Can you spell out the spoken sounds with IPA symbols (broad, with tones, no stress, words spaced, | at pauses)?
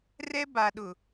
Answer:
rɛ˦ba˨ɗʊ˨